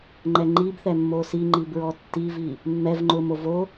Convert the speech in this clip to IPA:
ŋ͡ǃ ɛ ŋ͡ǃ i b θ ɛ mː o s i ŋ͡ǃ i b ɹ ɔ tː i v i | mː ɛ v ŋ͡ǃ ʊ m o v o

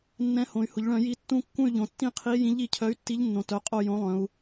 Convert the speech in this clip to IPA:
nː ɛ̃˨˥ h õ˩˧ y̯ h ʊ˩˧ ʎ ɭ œ̃˧˩˧ j i˨˥ tː ũ˦˨ kː ũ˦˨ y̯ ʎ õ˩˧ tː ĩ˦˨ qʰ i˨˥ j ĩ˨˥ ʎ i˩˧ cʰ œ˨˥ y̯ tː i˨˥ ʎ nː õ˩˧ t œ˩˧ qʼ o˦˨ j õ˨˥ lˠ œ̃˩˧ u̯

